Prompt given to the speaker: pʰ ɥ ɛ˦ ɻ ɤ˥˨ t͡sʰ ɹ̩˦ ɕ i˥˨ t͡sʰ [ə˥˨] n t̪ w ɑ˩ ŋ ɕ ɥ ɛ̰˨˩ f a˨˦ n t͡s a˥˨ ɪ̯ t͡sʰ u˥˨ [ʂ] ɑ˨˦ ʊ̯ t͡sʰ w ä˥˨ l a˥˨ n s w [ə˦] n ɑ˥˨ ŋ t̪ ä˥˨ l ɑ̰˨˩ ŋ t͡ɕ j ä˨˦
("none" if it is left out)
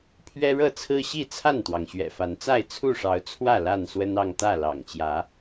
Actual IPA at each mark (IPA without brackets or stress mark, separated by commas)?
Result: a˥˨, ʂ, ə˦